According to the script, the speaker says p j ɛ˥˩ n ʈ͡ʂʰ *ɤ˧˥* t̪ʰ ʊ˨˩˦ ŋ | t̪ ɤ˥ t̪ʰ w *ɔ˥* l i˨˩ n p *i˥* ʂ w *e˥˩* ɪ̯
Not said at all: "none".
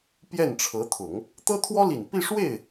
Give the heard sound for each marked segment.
ɤ˧˥, ɔ˥, i˥˧, e˥˩

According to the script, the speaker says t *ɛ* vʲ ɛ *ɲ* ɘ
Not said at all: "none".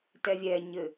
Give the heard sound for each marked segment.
ɛ, ɲ

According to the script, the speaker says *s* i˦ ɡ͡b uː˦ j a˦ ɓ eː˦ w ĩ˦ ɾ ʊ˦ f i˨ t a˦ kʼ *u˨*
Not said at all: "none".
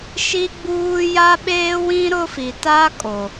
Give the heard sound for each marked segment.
ʃ, o˨

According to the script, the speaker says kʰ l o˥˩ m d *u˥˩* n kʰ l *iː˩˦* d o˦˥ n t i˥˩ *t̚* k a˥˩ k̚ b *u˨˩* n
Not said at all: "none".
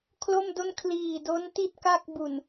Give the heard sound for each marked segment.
o˥˩, iː˨˩, t̚, u˨˩

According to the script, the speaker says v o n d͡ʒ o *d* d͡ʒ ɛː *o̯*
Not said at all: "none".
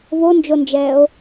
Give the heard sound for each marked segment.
n, o̯

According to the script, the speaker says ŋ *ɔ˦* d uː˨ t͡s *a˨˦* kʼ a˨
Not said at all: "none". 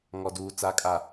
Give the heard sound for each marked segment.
ɔ˨, a˨˦

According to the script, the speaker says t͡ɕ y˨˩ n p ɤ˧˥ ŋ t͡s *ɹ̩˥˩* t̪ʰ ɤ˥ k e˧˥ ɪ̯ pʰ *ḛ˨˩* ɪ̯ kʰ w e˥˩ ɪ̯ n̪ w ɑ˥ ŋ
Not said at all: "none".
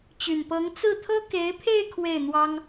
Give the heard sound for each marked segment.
ɹ̩˥˩, e˥˧

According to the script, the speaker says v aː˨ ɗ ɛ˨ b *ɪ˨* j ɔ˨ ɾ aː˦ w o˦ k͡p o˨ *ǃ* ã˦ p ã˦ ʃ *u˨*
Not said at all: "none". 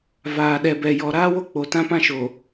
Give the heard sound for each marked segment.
ɛ˨, t, o˨

